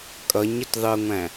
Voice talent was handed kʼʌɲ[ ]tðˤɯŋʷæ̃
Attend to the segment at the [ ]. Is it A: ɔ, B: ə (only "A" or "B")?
B